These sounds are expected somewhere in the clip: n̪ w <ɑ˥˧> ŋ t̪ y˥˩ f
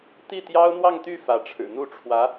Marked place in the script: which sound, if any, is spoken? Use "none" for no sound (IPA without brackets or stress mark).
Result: ɑ˥˧